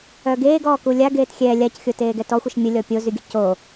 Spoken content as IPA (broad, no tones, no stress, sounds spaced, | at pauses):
œ ɡ eː ɡ ɔː k u lʲ a ɡ eː t xʲ ɛː lʲ a c xʲ o t eː ɡ ɛ t ɔ xʷ ə ʃ mʲ ə lʲ ɔ pʲ o z y ɡʲ ə c o